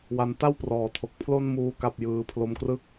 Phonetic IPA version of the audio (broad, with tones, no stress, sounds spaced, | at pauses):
w a˦˥ n t a˥˩ w p r ɔː˩˦ tʰ o˨˩ k̚ pʰ l o˧ n m uː˨˩ k a˨˩ p̚ j ɯː˧ pʰ l o˧ m k r ɯ˥˩ k̚